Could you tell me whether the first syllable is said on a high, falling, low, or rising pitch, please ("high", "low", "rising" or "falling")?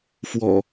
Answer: low